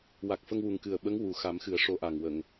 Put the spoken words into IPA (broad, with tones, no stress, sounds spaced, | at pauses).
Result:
w a˨˩ k̚ f ə˧ ŋ w u˨˩ ŋ k ɨ˨˩ ə̯ ɓ ə˧˥ ŋ w u˨˩ x a˨˩˦ m x ɨ˨˩˦ ə̯ ʂ o˧˥ ʔ a˨˩ ŋ w ə˨˩˨ ŋ